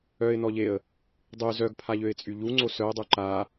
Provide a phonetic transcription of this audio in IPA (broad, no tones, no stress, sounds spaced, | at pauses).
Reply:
œ ɪ̯ n ɔ ʎ e ə̯ | dˤ y z œ ɡ pʰ a ʎ ø ɪ̯ t͡sʼ y ʎ u ŋ͡ǀ o s œ ʊ̯ dˤ u ǃ a